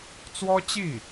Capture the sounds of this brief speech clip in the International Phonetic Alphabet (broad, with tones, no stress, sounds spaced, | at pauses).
t͡s w ɔ˥ t͡ɕ i˥˩